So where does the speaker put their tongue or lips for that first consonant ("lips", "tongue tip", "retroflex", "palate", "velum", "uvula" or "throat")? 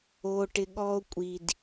retroflex